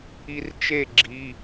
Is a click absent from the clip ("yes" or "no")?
no